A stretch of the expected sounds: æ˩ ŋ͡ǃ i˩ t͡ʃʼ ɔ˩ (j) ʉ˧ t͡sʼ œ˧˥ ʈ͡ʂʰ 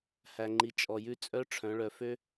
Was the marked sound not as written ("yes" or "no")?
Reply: no